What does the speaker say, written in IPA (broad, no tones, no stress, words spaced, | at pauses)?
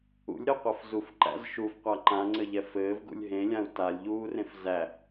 ṵlʲɾɘu̯qʷɛf zufǃæ̰z ʃufqʷa ǃãŋ͡ǀɘʎɛ fɘːvɡṵlʲ ɦẽlʲãu̯ talʲʎuːrẽf zæ